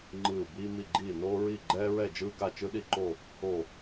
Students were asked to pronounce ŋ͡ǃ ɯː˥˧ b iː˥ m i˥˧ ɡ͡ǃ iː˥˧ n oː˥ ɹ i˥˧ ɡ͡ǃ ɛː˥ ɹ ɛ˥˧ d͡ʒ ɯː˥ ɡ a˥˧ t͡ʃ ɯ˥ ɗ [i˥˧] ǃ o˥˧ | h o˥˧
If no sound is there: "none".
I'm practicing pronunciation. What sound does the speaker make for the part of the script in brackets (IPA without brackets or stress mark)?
i˥˧